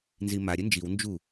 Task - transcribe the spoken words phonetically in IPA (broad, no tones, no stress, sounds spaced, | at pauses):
n z i m a ɾʲ ɘ n d͡ʒ i w n d͡ʒ u